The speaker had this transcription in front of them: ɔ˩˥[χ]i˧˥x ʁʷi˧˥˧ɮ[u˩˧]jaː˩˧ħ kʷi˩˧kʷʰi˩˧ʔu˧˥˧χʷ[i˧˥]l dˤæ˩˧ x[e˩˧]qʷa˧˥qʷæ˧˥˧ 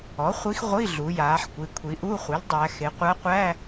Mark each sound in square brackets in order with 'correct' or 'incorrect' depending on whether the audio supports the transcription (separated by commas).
incorrect, correct, incorrect, correct